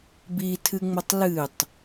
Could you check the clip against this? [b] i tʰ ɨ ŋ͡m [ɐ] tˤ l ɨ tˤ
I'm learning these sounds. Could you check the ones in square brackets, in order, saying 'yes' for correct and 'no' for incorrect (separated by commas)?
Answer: yes, yes